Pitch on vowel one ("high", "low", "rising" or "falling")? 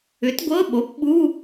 rising